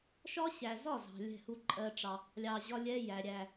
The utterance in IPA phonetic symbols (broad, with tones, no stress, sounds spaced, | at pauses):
ʃ ɒ˦ ɕ æ˨ z ɒ˦˨ z ɑ̤˨ lʲ ɛ̤˦˨ h u˦ ǃʼ ɜ˧ ʈ͡ʂ ɑ˨ | lʲ ɑ˧ ʑ ɒ˦ lʲ ɛ˦ j æ˨ ɾʲ æ˨